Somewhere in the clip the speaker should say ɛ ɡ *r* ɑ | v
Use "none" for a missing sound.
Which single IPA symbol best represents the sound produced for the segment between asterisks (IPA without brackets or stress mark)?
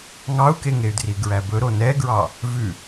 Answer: ɹ